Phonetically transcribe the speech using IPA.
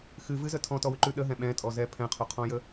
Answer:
x ɨ v ɨ z ə tʰ ɔ̃ t ɔ w ʉ ǃ ʉ ɗ ə ɦ ɛ̃ ɓ ɛ̃ tʼ ɔ z ɛ pʰ ɛ̃ qʰ o qʰ ɔ̃ j ə

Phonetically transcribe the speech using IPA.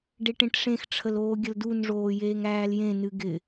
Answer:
ɖ e ʈ ẽ ʈ ʂ ẽ x ʈ͡ʂʰ ə l oː ɡʲ ə l d u n ʐ oː j eː ŋ æː l j ẽ n ɨ ɡ ɪ

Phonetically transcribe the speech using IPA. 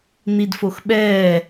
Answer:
n̪ i d f o x ɓ ɛː

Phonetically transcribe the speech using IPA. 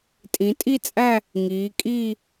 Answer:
tʼ ĩ˩˧ tʼ i˥˧ t͡sʼ æ˥˧ | ŋ iː˩˧ kʼ iː˥˧

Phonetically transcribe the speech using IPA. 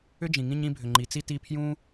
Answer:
ʏ˥ d͡ʒ ĩ˩ ŋ ĩ˦ ɲ ĩ˦ bʱ ʏ˩ ŋ͡ǃ i˩ t͡s i˦ t i˦ pʰ j ũ˥

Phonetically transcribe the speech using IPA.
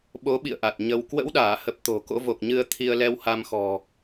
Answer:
ɓ o˨˦ ɓ ḭ˧˨ ə̯ ʔ a˨˩ t̚ ɲ ə˧ w k w ə̰˧˥ w ɗ aː˧˩ h ə˨˩ p̚ t̪ o̤˨˩ k o̰˧˥ v o˨˩ k̚ ɲ ɨ˧ ə̯ t̪ʰ i˧ ə̯ l ɛ˧ w h a˧ m x ɔ̤˨˩

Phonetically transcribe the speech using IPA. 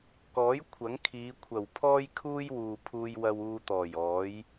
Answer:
k ɔː˨˥ j kʷʰ ɐ˨˥ ŋ kʰ iː˨˧ kʷʰ ɐ˨˩ w pʰ ɔː˥ j kʰ uː˥ j w uː˨ pʰ uː˧ j w ɐ˧ w uː˧ t̪ ɔː˨˩ j ɔː˨˥ j

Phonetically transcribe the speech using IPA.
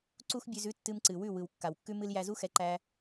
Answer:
ǀ u˦ x bʲ ʉ˧ z ʉ˦ tː ɨ˧ m ǀ ɨ˨ w ʉ˦˨ w ɯ˨ w kː a˨ w kː ʉ˦ m ɨ˧ l j æ˧ z u˦ x ɛ˨˦ ǃ æ˧

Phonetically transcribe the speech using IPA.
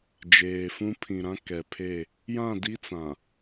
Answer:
d͡ʒ eː˨ f ũ˦ pʰ ĩ˨ ɾ ã˦ k ɛ˨ pʰ e˦˨ | j ã˦˨ d i˦ t͡s ã˨

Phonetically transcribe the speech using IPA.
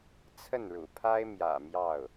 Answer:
t͡sʰ ə˥˩ n ɻ ṵ˨˩ pʰ a˥ ɪ̯ m j ä̰˨˩ m j ɑ˥˩ ʊ̯

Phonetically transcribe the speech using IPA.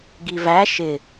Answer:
ɡ i v æ ʃ ɪ

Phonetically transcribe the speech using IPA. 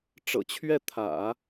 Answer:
ʈ͡ʂ ɤ̰˨˩ t͡ɕʰ ɥ ɛ˥˩ t̪ʰ ä̰˨˩˦

